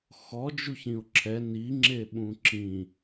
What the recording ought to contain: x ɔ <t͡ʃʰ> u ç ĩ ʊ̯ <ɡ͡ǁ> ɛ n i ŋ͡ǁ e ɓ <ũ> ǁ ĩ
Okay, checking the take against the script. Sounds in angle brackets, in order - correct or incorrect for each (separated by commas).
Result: incorrect, incorrect, correct